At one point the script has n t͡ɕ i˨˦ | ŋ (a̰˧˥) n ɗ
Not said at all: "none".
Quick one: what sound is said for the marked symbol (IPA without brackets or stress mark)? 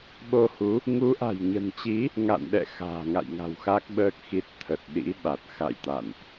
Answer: a̰˧˨